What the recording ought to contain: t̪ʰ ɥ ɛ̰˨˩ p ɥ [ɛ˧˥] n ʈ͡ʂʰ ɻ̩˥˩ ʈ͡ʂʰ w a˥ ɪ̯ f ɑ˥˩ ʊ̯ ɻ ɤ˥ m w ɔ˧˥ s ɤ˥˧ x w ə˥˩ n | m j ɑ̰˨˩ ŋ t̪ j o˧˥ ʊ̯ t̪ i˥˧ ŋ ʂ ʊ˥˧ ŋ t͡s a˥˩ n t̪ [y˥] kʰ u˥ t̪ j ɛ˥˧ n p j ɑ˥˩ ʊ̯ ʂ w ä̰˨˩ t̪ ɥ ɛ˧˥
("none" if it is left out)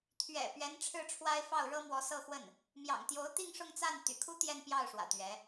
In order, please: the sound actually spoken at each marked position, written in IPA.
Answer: ɛ˧˥, y̰˨˩

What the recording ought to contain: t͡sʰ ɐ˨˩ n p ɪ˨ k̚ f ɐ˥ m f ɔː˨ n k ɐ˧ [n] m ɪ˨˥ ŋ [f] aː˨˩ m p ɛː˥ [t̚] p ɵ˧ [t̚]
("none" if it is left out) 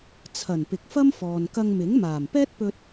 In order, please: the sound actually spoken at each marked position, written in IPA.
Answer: ŋ, m, t̚, t̚

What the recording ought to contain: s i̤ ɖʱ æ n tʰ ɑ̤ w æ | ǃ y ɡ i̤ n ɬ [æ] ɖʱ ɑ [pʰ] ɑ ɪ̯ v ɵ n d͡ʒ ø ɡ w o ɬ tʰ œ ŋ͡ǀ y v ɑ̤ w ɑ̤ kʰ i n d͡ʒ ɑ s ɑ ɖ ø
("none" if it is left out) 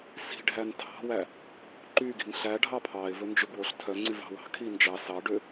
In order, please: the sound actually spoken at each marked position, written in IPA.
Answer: æ, pʰ

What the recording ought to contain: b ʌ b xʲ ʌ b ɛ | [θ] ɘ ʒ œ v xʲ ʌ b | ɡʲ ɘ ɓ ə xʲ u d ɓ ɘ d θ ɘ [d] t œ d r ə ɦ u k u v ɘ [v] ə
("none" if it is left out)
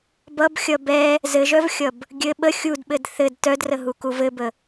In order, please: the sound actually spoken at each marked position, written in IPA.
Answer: z, d, b

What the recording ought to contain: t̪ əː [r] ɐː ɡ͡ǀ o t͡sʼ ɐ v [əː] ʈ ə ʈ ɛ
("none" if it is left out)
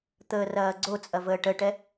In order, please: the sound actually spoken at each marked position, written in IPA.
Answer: r, əː

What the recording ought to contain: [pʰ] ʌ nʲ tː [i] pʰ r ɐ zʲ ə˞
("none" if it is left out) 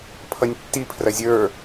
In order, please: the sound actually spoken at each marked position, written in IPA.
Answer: pʰ, i

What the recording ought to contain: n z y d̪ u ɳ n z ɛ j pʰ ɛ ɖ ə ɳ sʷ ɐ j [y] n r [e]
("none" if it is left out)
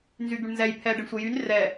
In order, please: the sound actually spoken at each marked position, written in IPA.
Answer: y, ɛ

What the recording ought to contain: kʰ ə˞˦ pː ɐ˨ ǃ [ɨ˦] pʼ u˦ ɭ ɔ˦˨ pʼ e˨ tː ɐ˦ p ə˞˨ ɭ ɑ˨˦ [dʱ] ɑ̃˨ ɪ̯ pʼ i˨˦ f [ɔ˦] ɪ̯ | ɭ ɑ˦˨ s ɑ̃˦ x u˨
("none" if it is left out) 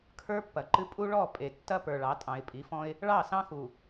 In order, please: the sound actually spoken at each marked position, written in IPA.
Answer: ɨ˦, tʼ, ɔ̃˦

